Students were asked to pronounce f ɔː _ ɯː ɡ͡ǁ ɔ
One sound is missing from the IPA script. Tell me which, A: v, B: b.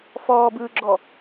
B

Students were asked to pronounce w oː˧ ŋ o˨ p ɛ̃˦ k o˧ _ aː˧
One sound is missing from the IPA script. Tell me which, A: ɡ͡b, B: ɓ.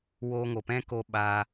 B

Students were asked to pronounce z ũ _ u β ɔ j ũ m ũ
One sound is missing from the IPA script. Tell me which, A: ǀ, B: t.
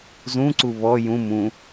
A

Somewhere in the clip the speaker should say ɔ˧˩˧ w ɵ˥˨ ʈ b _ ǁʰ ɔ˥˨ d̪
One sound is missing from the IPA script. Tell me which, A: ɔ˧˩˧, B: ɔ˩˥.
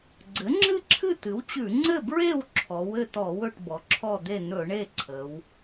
B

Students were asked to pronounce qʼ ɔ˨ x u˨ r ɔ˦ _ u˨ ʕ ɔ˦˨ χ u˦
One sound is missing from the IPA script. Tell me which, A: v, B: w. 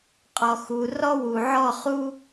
B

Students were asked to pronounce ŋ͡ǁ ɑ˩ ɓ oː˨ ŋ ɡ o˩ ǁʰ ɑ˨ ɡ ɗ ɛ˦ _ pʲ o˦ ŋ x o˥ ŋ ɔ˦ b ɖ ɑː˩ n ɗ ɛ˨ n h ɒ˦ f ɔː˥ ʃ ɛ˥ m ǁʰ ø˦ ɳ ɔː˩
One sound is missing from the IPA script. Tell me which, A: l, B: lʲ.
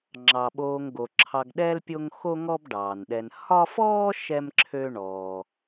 A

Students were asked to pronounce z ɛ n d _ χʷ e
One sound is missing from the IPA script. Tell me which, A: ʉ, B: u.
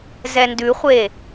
A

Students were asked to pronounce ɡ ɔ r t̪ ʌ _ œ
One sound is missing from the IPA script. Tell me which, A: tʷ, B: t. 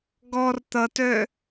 B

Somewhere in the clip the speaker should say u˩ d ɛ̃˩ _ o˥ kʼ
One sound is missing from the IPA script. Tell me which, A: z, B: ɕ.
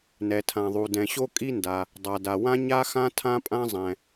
B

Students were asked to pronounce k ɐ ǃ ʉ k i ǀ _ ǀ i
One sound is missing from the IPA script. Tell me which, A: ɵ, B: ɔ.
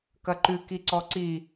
B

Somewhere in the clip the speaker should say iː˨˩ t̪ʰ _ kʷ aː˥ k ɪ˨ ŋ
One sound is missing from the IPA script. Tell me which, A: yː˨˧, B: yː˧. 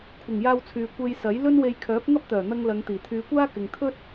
A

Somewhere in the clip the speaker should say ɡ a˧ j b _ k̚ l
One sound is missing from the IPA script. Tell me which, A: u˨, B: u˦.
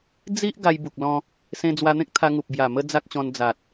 A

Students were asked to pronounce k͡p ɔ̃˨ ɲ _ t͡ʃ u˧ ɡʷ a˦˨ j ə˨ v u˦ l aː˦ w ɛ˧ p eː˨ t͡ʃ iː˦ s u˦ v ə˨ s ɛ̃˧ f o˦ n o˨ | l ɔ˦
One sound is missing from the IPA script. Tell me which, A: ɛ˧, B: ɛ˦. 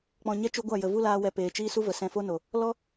B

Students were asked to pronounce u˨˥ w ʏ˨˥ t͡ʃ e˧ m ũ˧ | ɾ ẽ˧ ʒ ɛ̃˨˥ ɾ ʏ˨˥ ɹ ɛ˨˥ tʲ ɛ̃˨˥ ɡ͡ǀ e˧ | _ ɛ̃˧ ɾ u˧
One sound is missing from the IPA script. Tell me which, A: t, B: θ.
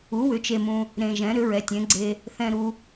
B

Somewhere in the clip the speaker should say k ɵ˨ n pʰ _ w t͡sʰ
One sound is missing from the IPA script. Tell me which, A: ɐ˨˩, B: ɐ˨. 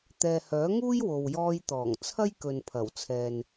A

